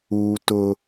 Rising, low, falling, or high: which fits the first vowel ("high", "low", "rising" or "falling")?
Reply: high